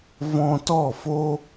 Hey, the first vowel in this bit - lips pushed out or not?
yes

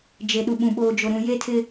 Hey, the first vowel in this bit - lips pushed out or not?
no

